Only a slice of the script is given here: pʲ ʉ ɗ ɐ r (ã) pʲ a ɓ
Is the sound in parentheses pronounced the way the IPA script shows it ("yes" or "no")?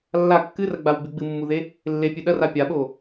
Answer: no